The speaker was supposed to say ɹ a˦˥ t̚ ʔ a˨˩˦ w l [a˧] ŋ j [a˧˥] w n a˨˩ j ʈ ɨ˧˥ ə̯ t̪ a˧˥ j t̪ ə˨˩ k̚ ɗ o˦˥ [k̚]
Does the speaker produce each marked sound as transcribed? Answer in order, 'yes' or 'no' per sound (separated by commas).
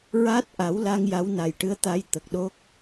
yes, yes, yes